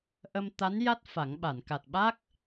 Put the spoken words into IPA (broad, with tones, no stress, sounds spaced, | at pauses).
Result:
ʔ ə˧ m t̪ a˧˥ n j a˦˥ t̚ f a˨˩˦ ŋ ɓ a˨˩˨ n k a˨˩ t̚ ɓ a˦˥ k̚